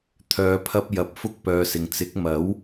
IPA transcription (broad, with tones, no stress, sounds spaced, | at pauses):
t̪ʰ œː˨˧ pʰ ɐ˧ p̚ j ɐ˨ p̚ f ʊ˧ k̚ p œː˨ s ɪ˨ ŋ t͡s ɪ˨˥ k̚ m ɐ˨˥ w